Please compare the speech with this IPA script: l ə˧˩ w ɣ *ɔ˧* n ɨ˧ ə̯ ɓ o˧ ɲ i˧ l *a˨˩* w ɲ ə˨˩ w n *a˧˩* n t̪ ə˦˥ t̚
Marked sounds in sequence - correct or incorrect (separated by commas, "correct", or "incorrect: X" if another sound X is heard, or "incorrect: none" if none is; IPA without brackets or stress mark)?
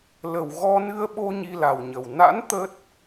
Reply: correct, correct, incorrect: a̰˧˥